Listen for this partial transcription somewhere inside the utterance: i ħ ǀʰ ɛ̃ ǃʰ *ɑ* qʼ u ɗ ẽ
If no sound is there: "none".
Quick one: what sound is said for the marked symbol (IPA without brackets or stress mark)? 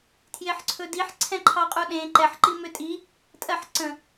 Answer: ɑ